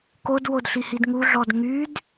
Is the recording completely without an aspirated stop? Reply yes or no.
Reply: yes